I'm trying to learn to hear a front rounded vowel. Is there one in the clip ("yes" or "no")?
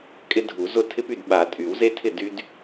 yes